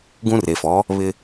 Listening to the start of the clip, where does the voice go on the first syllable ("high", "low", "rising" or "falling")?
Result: high